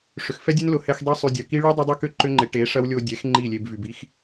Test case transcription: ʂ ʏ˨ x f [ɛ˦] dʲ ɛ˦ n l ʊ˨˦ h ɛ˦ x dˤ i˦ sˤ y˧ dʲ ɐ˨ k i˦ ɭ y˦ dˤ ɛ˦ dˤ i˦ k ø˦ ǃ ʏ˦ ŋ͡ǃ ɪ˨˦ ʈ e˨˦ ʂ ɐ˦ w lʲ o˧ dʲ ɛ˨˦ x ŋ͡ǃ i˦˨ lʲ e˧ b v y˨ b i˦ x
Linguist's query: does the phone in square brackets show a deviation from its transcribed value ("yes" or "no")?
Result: no